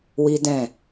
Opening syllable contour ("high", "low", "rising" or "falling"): high